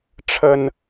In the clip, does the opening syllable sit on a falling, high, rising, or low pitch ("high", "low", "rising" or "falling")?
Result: low